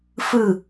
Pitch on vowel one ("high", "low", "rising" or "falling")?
falling